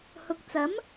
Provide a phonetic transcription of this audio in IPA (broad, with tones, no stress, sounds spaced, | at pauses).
h ʊ˨˥ k̚ t͡s ɐ˨˥ m